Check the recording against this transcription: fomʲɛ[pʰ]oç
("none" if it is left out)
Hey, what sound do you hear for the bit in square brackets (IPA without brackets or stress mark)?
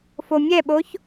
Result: ɓ